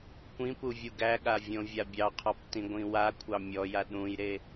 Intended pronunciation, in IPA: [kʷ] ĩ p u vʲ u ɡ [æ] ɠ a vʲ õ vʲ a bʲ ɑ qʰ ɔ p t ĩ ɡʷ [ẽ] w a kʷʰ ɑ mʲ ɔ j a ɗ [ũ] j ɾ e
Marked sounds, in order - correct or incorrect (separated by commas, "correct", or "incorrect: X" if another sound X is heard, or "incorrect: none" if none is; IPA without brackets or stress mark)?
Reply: correct, correct, incorrect: ĩ, correct